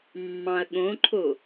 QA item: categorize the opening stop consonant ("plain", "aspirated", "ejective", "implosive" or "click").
implosive